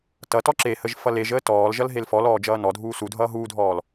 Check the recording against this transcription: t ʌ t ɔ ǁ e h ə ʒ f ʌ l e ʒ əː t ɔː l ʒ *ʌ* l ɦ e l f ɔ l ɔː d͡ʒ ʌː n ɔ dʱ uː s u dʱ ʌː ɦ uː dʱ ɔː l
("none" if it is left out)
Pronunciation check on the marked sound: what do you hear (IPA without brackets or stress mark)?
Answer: ʌ